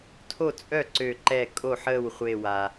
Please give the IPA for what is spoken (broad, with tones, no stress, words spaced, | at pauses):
tʰo˥˩t͡sʼœ˥˩ǀø˧˩ǃɛ˧˩ kʼo˥˩ħəː˥˩wχʷe˧˩wa˩